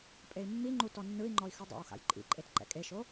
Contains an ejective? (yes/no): yes